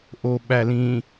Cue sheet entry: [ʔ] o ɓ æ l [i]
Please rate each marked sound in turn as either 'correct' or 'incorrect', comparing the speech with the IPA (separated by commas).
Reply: correct, incorrect